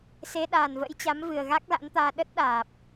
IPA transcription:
s e˨˦ ɗ aː˨˩ n v ə̰˧˥ j t͡ɕ a˨˦ m v ɨ˨˩ ə̯ ɣ a˦˥ k̚ l a̰˧˥ n t̪ aː˧ ɗ ə˦˥ t̚ ɗ aː˨˩ p̚

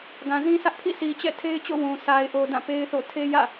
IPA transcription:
ɡ ã˨ z ĩ˦ sʰ ä˦ ʔ pʰ ḭ˦˨ sʰ i˨ t͡ɕ ɛ̰˦˨ tʰ e˦ ɪ̯ t͡ɕ o̰˦˨ w ũ˨ s a˨ ɪ̯ ʔ o˨ d ã˦˨ p e˦ ɪ̯ θ o̰˦˨ tʰ e˦ j ä̰˦˨

